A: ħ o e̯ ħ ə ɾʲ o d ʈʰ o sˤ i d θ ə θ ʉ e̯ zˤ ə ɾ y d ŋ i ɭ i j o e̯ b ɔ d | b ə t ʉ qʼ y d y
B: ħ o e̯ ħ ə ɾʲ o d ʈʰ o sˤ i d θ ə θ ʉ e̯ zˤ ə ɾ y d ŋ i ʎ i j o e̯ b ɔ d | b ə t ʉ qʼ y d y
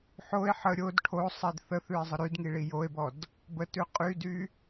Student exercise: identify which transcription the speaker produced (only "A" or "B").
A